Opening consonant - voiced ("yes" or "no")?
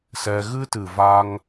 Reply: no